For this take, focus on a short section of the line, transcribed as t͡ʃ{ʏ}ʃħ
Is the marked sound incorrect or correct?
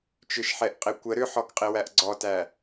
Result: correct